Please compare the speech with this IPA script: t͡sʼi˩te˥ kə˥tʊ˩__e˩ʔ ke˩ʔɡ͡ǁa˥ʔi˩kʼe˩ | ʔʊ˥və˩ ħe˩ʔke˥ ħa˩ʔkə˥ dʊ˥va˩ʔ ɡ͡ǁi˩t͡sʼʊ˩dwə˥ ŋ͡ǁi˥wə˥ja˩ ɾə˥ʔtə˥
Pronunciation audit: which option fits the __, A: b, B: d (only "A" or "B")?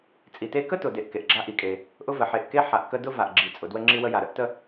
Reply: B